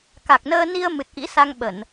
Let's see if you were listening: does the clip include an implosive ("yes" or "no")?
yes